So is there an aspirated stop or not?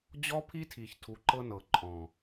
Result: yes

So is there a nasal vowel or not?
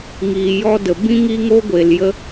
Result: yes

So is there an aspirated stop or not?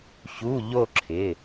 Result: yes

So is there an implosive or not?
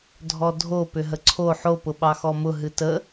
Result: yes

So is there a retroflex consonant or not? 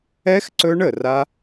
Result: yes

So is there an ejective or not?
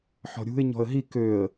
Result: no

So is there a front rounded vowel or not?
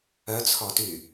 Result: yes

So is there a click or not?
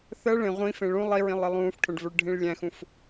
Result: no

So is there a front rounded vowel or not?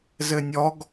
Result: no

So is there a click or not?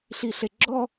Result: yes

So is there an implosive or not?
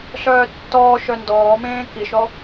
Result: no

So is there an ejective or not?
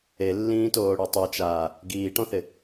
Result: no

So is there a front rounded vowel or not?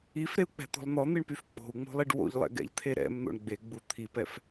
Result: yes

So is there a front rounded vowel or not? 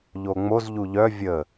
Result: yes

